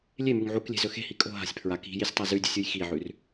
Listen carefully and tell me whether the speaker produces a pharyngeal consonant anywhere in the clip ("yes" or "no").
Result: yes